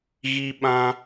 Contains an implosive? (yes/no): yes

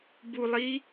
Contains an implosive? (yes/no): no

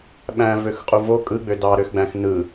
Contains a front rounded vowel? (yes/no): yes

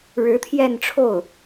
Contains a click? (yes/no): no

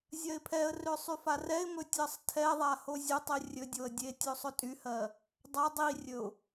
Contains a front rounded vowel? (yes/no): yes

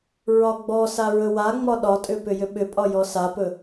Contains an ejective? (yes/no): yes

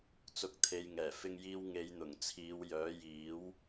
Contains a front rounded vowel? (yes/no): yes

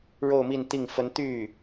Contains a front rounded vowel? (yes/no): yes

